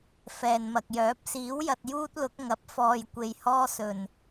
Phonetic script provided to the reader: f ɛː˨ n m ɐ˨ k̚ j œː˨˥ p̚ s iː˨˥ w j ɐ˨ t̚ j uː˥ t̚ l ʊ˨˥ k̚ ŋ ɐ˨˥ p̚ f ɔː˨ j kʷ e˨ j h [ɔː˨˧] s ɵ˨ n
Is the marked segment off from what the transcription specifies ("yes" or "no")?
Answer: yes